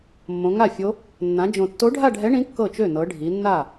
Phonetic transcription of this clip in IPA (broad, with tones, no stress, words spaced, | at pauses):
mːõ˩˧ŋa˥˩fʲo˧˥ | nːã˩˧d͡ʒõ˨˩tːo˧˥ ɖʱa˥˧ɖʱɛ˧˥ɳĩ˧˥ kːɤ˥˩t͡ʃø˥˩ nɤ˩˧ɖʱi˩˧nːa˥˩